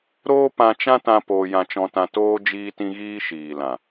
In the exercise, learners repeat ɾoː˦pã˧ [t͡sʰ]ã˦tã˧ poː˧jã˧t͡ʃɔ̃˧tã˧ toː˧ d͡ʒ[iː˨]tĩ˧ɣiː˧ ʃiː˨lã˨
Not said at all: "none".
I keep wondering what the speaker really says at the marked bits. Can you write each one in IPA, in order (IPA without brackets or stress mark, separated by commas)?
t͡ʃ, iː˧